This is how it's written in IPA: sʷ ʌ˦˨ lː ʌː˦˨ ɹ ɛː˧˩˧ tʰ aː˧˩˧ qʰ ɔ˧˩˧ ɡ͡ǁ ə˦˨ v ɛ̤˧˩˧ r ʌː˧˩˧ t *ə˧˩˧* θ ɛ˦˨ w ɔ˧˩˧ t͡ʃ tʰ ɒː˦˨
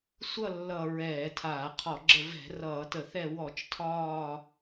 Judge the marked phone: correct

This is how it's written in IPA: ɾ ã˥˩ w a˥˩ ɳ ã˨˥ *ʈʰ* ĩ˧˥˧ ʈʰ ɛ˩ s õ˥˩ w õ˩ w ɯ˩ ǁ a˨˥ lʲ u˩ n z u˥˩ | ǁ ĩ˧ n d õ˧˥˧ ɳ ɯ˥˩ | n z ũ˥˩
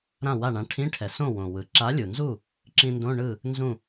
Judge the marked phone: correct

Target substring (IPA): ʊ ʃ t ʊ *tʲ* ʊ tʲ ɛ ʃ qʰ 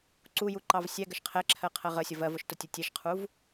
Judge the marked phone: correct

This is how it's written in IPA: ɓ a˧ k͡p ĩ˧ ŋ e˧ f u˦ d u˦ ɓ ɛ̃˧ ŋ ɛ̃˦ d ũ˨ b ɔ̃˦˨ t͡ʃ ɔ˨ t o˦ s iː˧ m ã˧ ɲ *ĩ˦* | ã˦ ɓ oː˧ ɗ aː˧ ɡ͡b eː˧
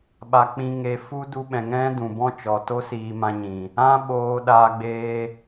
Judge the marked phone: incorrect: ĩ˨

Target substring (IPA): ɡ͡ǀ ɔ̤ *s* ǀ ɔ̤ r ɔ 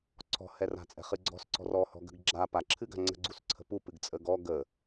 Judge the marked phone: correct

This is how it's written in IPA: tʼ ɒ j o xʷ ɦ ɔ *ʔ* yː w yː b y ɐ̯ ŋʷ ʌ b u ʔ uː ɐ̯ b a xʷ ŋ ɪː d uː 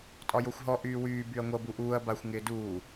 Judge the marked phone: correct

